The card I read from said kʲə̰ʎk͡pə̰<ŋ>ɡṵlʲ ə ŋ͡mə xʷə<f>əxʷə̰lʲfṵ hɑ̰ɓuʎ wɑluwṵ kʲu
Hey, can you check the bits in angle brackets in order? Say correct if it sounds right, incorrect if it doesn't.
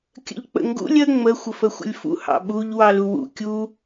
correct, correct

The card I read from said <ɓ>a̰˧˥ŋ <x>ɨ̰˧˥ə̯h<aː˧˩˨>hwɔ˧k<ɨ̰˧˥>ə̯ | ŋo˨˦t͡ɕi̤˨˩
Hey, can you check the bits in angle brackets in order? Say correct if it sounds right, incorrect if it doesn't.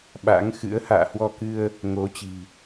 correct, correct, incorrect, incorrect

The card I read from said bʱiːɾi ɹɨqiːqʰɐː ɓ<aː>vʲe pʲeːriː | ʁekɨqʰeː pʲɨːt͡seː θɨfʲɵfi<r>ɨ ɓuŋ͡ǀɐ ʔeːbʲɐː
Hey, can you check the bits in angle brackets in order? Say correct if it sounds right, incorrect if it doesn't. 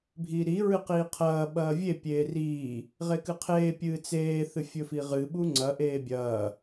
incorrect, incorrect

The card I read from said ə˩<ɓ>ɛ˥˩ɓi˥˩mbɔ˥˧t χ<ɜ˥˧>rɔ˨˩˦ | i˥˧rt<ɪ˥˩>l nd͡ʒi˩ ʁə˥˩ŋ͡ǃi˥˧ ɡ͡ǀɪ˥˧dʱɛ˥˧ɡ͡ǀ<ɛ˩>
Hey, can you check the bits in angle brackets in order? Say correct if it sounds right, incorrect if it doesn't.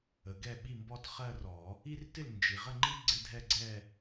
incorrect, correct, correct, incorrect

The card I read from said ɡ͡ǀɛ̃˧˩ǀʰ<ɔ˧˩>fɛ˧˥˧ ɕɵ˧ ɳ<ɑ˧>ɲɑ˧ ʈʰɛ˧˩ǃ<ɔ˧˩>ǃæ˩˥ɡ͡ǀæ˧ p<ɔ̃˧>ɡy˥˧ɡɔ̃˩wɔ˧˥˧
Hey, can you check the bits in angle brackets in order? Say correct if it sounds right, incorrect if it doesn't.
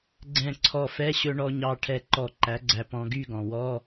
correct, incorrect, correct, correct

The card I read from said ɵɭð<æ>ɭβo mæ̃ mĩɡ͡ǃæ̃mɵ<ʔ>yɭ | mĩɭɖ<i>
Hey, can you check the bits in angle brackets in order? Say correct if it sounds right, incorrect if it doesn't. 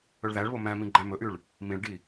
correct, correct, correct

